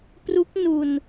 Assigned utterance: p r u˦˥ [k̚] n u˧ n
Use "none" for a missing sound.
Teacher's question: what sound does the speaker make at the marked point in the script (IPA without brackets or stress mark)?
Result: k̚